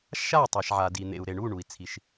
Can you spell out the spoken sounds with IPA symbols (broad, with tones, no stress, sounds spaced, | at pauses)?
ʃ a˥˩ tˤ a˩ ʃ ʕ a˩ d i˩ n̪ ḛ˩ u̯ ɾ e˩ ɳ u˥˩ ɳ u˩ i̯ t͡sʰ i˩ ʃ